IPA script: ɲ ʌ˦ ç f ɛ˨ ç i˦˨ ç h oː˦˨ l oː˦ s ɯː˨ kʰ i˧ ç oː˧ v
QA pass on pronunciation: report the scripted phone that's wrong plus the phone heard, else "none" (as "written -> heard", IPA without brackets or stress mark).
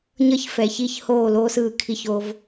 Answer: none